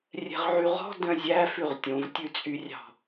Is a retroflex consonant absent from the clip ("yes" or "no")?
yes